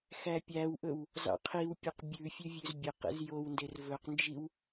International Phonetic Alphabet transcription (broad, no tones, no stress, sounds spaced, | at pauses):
x æ pʲ æ w ʔ ɵ w | z ɑ̰ qʰ i w pʲ ø q bʲ ʉ fʲ ʉ vʲ ʉ z bʲ e q ḛ z j o w n d e r v ɵ q n d͡ʒ i w